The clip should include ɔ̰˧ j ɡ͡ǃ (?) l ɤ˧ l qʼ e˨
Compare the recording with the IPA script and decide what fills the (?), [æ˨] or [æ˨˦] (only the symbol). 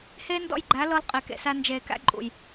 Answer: æ˨˦